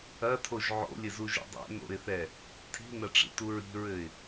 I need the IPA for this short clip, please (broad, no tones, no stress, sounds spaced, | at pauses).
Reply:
ɐ tʰ o ʒ ʕ o̰ lʲ ɘ z u ʒ ḭ dˤ ɛ̰ n o̰ ɪ̯ θ ɛ | tʰ i̤ n ɐ ʈ͡ʂ ḭ t u ɹ i̤ ɹ ɘ ɪ̯